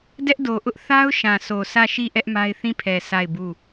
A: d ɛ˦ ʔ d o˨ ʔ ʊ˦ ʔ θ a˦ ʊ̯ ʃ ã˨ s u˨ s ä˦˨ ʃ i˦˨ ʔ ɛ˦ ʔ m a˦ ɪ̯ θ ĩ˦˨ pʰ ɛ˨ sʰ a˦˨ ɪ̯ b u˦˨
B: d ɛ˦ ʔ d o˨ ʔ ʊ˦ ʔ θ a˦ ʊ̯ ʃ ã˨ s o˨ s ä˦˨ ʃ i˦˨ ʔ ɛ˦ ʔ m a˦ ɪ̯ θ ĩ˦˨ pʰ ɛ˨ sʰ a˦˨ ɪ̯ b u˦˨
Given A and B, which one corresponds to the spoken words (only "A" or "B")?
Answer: B